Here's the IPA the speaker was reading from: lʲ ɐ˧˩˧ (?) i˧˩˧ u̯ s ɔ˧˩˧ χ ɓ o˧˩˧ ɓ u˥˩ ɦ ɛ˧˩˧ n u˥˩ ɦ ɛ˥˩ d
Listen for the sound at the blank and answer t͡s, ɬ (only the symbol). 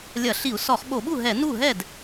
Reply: ɬ